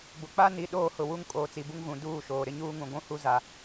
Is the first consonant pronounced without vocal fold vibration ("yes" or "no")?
no